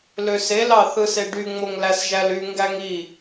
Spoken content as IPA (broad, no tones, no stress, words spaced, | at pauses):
løse lɑθɯseɖy ŋ͡moŋlæsʒæly ŋɡæŋi